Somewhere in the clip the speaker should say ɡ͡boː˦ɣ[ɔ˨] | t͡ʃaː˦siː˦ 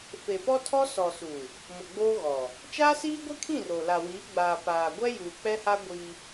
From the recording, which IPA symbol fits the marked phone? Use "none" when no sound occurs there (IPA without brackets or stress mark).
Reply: ɔ˨